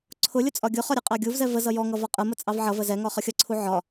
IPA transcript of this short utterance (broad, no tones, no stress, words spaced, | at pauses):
ǀʰʊlʲʊ t͡sʼɒɡʲʊχɒ ɾʲəqʼɑɡʲuvzɛ vəzʌ jɔŋʌ vɒqʼəmə t͡sʼɑvʕʌvə zɛŋɒ χʌxʲʌǀʰu ʕɒ